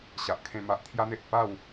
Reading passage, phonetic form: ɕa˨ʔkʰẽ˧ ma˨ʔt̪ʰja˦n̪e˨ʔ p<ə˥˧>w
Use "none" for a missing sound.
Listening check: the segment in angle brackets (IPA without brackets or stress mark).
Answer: a˥˧